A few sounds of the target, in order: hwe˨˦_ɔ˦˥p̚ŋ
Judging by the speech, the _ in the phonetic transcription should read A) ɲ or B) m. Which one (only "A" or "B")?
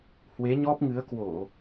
A